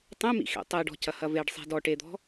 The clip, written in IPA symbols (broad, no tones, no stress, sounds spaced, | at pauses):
tˤ ẽ m ḭ x ḛ tˤ e ɖ ɔ̤ c ɐ h ɐ v e ɖ sˤ e̤ d ɔ ʈ e d̪ ɔ̤